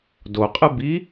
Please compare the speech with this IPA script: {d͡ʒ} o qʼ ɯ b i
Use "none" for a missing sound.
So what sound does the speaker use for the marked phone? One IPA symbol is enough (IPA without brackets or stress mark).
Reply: d